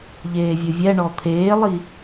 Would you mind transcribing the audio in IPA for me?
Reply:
ʎ eː vʲ ʊ vʲ ɛ ɳ ɔ t̪ʰ eː lˠ i

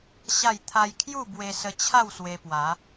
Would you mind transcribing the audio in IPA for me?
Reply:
ɕ a˥˧ j t̪ʰ a˧ j kʰ j u˥˧ b w e˧ s ə˧ t͡ɕʰ a˥˧ w s w e˧ p w a˨˦

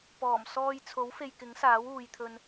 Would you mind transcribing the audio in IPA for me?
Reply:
p ɔː˨˩ m s ɔː˧ j t͡sʰ o˨˥ w f e˧ j k ɪ˨˥ ŋ s aː˨˥ w uː˨ j t̪ʰ ɵ˧ n

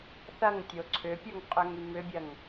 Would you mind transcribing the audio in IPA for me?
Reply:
θ ɐ ŋ tʲ o ǀʰ ʏ pʲ o ŋ qʼ ø ŋ y m ʏ bʲ ɐ ŋ

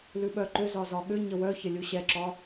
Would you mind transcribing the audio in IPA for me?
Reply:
l ʉ ɓ œ ǃ ʏ z ɒ z ɒ ɠ ʏ ɲ ə w œ ç ə lʲ u ɕ ɛ ǁ ɒ

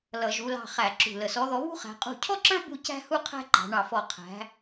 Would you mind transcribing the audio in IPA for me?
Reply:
l ʌ˧˩˧ ʒ u˨˦ l ɑ̤˦˨ χ æ˧˩˧ ǁ ṳ˨˩ l ə˨˩ s ɔ˨˦ ð ɔ˨˦ β ṳ˥ χ æ̤˨˦ qʼ ṳ˦˨ cʰ ɔ˥ ǁ ə˞˥ b u˦˨ c æ̤˥ h u˥ qʰ æ̤˥ ǃ ɑ̤˨˦ ɳ ɑ˦˨ f ɔ˦˨ qʰ æ̤˨˦

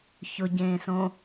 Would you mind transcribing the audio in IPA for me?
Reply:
ç ʊ ɟ ẽː s õ

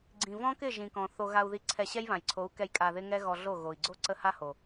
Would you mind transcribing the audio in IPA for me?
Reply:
ɡ͡ǀ ĩ˨ v ɔ̃˦ k ɪ˦˨ ʒ ĩ˨ k ɔ̃˨ θ o˧ ɣ a˧ u̯ ð i˧ ǀʰ ɛ˧ ɕ ɛ˦ j β ã˨ j ǀʰ o˨˦ u̯ k ɛ˧ j kʼ a˧ ð ɪ˦ ŋ ɛ˦ ɣ ɔ˧ ɮ o˦˨ ɣ o˨ i̯ ɡ͡ǀ o˦ ǀ ə˦ h a˦ h o˨

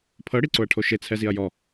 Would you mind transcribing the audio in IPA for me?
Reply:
pʰ ɤ ɽ i ǀ o ɐ̯ ʈʰ o ʃ e t͡sʰ ɛ z i ɐ̯ j ɔ

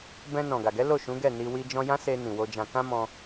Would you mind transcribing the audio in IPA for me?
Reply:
b ɛ̃˧ n ɔ̃˨ ɡ a˨ ɡ ɛ˨˦ l o˦˨ ʃ ũ˨˦ ɡ ɛ˦˨ n i˧ w i˧ d͡ʒ ɔ̃˧ j ã˦ s e˧ n ĩ˨ w o˧ d͡ʒ ã˧ k ã˦ m ɔ̃˧

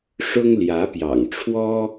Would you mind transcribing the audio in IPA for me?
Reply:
ʂ ʊ˥ ŋ l j ä˧˥ p j ɑ̰˨˩ ŋ ʈ͡ʂʰ w ɔ˥

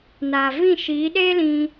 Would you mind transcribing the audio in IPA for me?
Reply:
n aː˨ v ĩ˦˨ ʃ iː˨˦ ɗ eː˦ l ĩ˧

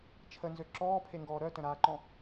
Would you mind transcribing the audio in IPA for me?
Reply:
t͡ʃʰ ə n z ø ǁ ɔː pʰ e ŋ ɡ ɔː ɾ œ t ə̃ ɾ aː ǃ ɔ̃

